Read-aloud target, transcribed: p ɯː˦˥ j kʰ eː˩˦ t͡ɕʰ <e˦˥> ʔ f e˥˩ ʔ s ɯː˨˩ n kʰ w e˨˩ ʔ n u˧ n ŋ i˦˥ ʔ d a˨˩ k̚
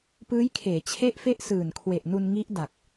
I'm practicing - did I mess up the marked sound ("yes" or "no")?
yes